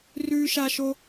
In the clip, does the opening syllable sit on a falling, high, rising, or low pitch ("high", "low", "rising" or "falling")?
high